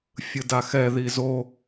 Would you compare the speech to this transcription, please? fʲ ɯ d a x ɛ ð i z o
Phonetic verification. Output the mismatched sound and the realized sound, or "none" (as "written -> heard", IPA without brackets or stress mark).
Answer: none